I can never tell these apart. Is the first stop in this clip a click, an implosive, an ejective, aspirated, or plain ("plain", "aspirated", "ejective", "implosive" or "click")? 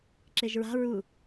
click